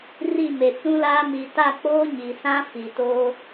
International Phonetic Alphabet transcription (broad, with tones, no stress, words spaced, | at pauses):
ri˦˨me˨ t͡sũ˦laː˦ mi˨ta˦˨k͡poː˦ ɲi˨sã˦ fi˨toː˦